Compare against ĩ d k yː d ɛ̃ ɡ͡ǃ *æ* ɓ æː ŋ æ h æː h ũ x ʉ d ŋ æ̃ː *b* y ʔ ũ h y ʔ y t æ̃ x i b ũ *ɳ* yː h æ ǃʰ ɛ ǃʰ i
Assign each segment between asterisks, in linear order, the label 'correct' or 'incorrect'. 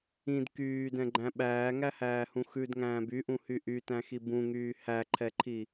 incorrect: æ̃, correct, incorrect: ŋ

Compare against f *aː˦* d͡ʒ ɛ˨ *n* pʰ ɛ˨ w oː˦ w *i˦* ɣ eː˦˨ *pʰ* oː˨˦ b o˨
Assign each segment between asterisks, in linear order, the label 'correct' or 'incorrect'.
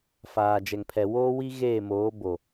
incorrect: aː˨, incorrect: ŋ, correct, incorrect: m

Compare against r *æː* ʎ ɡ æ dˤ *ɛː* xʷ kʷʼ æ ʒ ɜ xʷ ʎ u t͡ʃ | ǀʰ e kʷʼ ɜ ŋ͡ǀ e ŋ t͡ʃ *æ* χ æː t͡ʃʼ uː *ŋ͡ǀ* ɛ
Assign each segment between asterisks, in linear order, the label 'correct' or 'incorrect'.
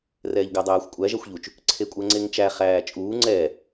incorrect: ɛː, incorrect: æː, correct, correct

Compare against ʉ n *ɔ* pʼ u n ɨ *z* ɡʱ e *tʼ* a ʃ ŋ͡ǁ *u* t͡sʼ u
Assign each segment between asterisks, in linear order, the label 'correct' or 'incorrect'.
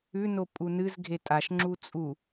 incorrect: o, correct, correct, correct

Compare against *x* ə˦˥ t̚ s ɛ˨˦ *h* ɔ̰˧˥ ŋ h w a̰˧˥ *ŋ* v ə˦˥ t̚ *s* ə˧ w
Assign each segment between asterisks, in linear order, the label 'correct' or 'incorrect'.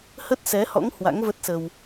incorrect: h, correct, correct, correct

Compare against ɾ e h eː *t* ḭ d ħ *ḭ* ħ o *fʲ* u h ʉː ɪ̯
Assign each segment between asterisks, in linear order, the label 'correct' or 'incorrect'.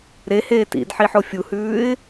correct, incorrect: i, correct

